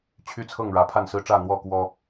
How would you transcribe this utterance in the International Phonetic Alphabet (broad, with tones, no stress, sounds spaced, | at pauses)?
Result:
t͡ɕʰ y˥˨ t͡sʰ ɤ˥˨ ŋ ɻ ä˨˦ pʰ a˥˨ n s ɹ̩˦ ʈ͡ʂ ä˥˨ n̪ w ɔ˥˨ k w ɔ˦